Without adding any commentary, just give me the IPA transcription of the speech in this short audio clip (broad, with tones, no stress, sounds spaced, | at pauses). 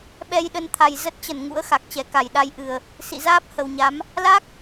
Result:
ɓ ɛ˧ j ɗ ə˧ n t̪ʰ a˨˩ j z ə˦˥ t̚ t͡ɕ ə˧˩ n ŋ ṵ˧˥ ə̯ x a˨˩ k̚ t͡ɕ ɛ˨˩ k a˧˩ j ɗ a˧ j ʔ ɨ˨˩ ə̯ | s ḭ˧˨ z aː˦˥ p̚ h ə˨˩ w ɲ a˨˦ m | l a˦˥ k̚